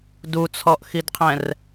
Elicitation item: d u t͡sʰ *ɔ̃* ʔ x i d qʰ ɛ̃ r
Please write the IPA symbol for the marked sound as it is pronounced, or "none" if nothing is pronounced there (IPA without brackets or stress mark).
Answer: ɔ